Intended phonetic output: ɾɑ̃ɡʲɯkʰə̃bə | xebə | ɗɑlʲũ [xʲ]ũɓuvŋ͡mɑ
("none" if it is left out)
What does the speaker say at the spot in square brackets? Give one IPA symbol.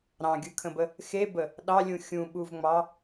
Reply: xʲ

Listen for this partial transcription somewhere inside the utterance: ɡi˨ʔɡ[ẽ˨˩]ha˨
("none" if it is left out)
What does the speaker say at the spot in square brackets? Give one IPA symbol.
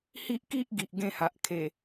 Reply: ẽ˥˧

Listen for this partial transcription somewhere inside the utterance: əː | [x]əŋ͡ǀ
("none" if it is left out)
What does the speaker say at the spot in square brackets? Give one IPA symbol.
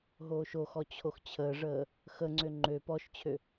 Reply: x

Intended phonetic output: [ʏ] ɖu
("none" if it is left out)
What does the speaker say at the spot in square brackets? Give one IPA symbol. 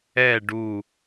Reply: ɛ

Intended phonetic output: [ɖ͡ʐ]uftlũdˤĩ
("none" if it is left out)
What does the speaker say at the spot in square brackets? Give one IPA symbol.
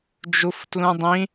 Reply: d͡ʒ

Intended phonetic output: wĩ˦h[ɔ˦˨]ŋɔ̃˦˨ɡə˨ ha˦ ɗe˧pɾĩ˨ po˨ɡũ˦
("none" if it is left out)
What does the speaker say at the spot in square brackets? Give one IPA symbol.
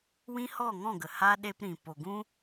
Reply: ɔ˦˨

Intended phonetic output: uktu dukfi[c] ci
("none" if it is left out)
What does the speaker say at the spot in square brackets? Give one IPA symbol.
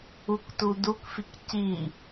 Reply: k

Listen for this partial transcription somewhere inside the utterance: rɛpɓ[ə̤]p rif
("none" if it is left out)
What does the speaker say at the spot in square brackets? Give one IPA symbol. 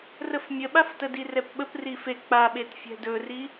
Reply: ə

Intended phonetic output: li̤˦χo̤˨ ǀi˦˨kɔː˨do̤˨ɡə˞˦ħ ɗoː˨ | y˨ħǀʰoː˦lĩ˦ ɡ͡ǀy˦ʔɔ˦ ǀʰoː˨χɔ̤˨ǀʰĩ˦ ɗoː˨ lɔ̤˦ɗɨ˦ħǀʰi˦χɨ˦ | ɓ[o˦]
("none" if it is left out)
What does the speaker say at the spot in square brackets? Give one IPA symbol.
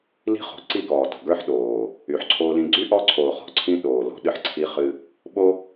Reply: o˦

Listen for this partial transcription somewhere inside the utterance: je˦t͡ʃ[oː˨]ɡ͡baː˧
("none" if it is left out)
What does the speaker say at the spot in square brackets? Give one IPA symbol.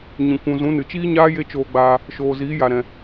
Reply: oː˧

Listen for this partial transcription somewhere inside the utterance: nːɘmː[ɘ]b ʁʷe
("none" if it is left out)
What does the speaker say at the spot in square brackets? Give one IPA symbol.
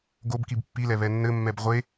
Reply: ɛ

